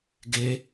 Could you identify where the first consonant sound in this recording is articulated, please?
velar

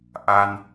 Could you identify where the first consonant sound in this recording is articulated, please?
glottal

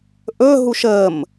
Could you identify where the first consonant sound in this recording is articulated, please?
glottal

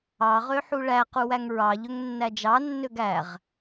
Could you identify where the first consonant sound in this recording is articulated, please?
uvular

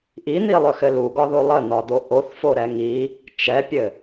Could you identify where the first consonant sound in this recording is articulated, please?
glottal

